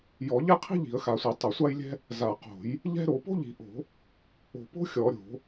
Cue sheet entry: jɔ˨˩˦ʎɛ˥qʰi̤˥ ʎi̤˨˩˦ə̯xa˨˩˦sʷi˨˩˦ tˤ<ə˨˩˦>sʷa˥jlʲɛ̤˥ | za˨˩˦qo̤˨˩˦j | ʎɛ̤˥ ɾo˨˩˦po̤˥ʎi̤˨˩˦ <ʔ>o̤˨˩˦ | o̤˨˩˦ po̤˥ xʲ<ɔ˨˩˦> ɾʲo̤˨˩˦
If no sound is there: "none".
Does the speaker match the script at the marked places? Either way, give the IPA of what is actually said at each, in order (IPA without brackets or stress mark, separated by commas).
ə˨˩˦, ʔ, ɔ˨˩˦